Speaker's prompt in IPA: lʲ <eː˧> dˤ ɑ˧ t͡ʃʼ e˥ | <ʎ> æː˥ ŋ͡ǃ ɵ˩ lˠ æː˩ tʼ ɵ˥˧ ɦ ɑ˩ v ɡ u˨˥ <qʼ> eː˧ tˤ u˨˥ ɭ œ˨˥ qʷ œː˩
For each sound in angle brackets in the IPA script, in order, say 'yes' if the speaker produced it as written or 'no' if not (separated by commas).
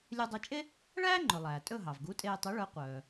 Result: no, no, no